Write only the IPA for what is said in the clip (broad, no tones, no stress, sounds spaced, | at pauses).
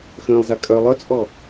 x ə̃ː lˠ z a kʼ œ lˠ œ t͡sʼ ɔ